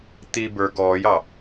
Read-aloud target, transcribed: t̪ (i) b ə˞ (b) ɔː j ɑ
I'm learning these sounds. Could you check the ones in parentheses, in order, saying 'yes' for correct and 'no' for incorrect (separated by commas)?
yes, no